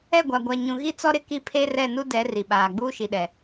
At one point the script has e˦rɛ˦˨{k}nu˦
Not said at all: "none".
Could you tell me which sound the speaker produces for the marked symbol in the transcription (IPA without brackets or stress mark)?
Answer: none